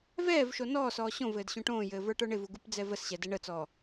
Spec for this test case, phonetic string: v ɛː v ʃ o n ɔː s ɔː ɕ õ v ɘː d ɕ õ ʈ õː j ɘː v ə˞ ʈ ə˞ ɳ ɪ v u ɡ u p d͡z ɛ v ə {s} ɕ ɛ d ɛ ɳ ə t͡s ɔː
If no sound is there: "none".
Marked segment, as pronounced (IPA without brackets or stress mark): s